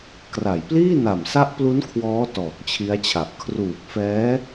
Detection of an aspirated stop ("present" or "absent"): present